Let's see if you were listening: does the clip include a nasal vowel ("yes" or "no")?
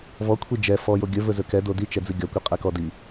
no